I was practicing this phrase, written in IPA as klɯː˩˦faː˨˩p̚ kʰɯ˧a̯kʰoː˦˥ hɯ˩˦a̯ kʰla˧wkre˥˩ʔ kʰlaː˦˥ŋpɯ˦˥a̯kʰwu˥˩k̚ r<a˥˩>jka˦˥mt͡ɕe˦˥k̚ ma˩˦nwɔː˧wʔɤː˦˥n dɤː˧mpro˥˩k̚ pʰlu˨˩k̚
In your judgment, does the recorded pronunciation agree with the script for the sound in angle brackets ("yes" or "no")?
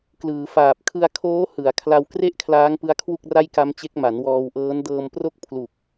yes